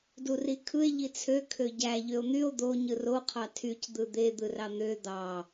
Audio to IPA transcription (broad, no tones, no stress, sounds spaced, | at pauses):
d u r i kʰ ɯ e̯ ʎ i t͡sʰ ø kʰ ø ɟ æ ʎ ø o̯ n̪ y o̯ d̪ o ɲ ɯ r o qʰ ɑ tʰ y c d̪ ɯ d̪ e d̪ ɯ r ɑ n̪ ø d̪ ɑ